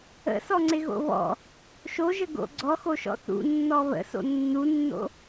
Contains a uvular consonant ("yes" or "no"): no